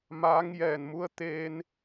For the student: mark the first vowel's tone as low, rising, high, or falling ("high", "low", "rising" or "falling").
rising